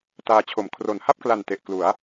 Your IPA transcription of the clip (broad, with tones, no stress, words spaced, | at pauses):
taː˧t͡ɕʰo˨˩m kʰro˨˩n ha˥˩p̚kla˨˩n te˨˩ʔ klu˩˦a̯